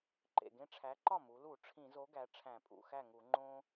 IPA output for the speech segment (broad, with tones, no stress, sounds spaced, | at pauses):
ǃ ḛ˨˩ ɡ ẽ˦ ʈ͡ʂʰ æ˨˥ ǃ ɒ˥˩ m u˩˧ l u˧˩˧ ʈ͡ʂʰ ĩ˧˩˧ z o˨˥ ɡ æ˩˧ ʈ͡ʂʰ æ̃˧˩˧ pʼ ṵ˨˩ x æ˥˩ ŋ u˧˩˧ ŋ͡ǃ õ˦